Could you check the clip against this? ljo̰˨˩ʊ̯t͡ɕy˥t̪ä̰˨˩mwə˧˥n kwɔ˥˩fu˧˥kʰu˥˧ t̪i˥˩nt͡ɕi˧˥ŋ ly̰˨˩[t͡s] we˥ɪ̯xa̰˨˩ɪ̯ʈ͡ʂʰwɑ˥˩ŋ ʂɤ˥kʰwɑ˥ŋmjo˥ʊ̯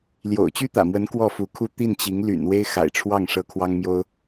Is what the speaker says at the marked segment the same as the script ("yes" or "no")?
no